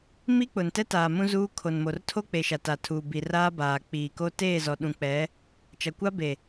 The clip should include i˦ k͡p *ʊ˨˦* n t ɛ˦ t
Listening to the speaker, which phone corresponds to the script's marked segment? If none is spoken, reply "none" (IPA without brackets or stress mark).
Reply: ʊ˨